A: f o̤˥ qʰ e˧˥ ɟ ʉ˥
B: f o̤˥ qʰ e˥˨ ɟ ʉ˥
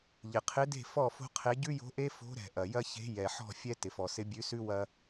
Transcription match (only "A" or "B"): A